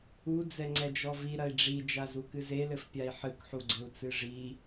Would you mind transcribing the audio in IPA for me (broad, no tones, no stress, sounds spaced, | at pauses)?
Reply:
u d͡z ɛ ŋ͡ǀ ɛ d͡ʒ ɔ v i ɾ ɐ i̯ ɖ͡ʐ i d͡ʒ a z u k ɨ z e l ɘ f pʲ a i̯ ħ ɨ k ħ u ɡ͡ǀ ɘ u̯ t͡s ɨ ʐ i